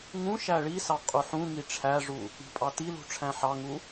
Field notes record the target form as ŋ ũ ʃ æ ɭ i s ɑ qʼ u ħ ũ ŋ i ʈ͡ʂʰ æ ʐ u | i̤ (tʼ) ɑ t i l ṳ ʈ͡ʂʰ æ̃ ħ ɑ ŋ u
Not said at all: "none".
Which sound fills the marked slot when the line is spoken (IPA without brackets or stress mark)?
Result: pʼ